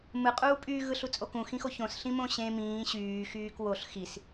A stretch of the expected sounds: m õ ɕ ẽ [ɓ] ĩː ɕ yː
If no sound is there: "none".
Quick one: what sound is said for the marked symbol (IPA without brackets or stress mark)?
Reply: m